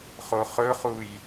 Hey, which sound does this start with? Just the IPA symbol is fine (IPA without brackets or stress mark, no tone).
χ